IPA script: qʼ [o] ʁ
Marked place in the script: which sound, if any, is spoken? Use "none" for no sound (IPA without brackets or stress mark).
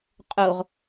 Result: o